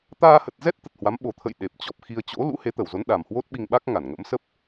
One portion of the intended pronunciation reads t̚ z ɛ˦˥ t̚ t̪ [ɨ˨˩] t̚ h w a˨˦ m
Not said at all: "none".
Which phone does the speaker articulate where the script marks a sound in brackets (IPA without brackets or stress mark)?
ə˨˩